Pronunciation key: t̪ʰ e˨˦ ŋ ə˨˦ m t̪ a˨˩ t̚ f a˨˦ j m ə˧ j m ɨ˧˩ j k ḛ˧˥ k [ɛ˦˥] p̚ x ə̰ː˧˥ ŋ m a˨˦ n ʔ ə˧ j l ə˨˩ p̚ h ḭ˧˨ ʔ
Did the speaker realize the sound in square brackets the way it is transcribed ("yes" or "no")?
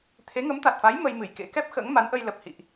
yes